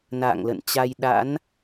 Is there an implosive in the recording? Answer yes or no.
yes